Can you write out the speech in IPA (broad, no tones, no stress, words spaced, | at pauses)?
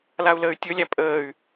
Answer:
lau̯ləːy̯tʲɵlʲæ pʼəːy̯